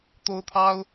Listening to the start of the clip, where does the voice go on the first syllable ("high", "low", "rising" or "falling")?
high